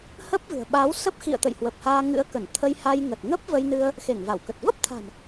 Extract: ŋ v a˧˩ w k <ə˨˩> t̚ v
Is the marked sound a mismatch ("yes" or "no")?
no